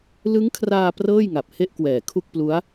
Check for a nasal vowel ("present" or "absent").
absent